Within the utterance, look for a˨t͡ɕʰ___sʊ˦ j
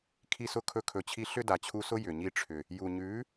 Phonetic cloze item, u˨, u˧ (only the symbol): u˧